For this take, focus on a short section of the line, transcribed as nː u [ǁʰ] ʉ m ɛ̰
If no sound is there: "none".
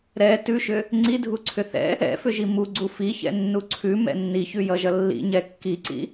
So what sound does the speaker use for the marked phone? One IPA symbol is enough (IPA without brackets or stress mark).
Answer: ǀʰ